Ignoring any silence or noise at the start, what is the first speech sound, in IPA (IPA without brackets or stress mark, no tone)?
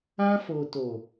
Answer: ã